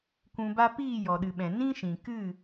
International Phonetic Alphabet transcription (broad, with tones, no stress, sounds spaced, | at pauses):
kʷ ũ˧ b a˦ p iː˦˨ j ɔ˨ ɗ ɨ˨ ɓ ɛ̃˨ n ĩ˦ ʃ ĩ˨ k ɨ˦˨